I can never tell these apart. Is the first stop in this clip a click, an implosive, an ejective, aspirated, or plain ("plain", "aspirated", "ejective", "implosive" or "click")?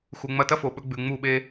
plain